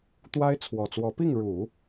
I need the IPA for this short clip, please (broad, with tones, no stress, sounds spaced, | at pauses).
t̪ w a˥ ɪ̯ t͡sʰ w ɔ˨˩ t͡s w ɔ˧˥ p i˥˩ ŋ ɻ u˨˩˦